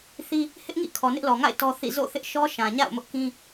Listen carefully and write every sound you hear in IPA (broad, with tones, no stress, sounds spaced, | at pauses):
θ i˦ | h ɪ˦ ʔ ŋ ḭ˦˨ kʰ ɔ˨ n ɪ˦ ʔ l ɔ˨ ŋ a̰˦˨ ɪ̯ t ɔ˦ θ ḭ˦˨ z o̰˦˨ θ ɪ˦ ʔ ʃ ɔ˦ ʃ ã˨ ɲ a̰˦˨ ʊ̯ m ʊ˦ ʔ k ĩ˦